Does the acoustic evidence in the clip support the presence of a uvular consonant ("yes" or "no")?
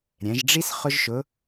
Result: yes